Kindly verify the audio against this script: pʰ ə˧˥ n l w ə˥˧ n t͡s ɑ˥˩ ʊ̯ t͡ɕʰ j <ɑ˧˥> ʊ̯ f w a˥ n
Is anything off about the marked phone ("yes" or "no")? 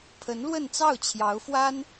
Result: no